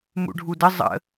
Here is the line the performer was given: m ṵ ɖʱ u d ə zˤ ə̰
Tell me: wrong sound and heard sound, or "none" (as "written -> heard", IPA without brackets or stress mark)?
none